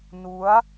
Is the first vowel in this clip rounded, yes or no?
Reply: yes